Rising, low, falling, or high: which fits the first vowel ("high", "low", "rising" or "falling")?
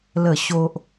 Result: falling